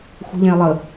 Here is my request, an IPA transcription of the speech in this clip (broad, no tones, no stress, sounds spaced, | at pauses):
xʷ ə̤ ʎ ɛ̃ ɪ̯ lˠ ə